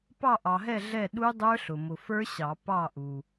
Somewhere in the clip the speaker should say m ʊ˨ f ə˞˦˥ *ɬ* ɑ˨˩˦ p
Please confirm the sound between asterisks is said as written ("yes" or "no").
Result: no